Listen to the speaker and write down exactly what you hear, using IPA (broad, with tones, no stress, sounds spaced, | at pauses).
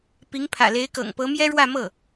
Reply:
p i˧˥ ŋ pʰ ä̰˨˩ l e˧˥ ɪ̯ k ɤ̰˨˩ ŋ p ɤ˧˥ m j ɛ˥ ɻ w ä˥˧ m ɤ˥˩